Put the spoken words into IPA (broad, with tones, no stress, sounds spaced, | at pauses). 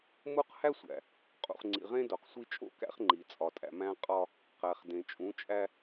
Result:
m u˦ q h æ˦ sʷ æ̰˨ | qʼ ṵ˨ χ ŋ͡ǀ ḭ˨ ʁ ẽ˦ d o˨ q sʷ i˦ t͡ʃʼ o̰˦˨ k æ̰˦ χ ŋ͡ǃ i˨ t͡sʼ ɒ˨ tʼ æ̰˨ m æ̃˦ qʼ ɒ˦ | q æ˨ χ d ẽ˨ t͡ʃʼ ũ˨˦ t͡ʃʼ æ˦